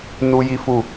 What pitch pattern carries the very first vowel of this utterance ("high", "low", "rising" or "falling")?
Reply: high